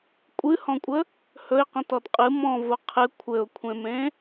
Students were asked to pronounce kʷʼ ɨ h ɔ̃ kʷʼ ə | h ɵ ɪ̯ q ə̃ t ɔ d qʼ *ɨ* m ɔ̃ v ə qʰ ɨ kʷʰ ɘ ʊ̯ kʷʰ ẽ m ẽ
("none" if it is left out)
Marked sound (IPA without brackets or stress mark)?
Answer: ɨ